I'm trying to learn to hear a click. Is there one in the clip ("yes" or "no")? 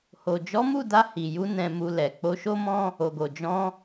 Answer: no